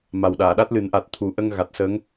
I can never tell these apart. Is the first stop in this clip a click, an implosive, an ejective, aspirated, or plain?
implosive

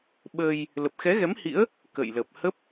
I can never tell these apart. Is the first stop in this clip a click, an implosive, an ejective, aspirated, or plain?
implosive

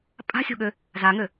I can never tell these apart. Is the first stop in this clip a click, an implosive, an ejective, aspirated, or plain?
ejective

